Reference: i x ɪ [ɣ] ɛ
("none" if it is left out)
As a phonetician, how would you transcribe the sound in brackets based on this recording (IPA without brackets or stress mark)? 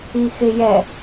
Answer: j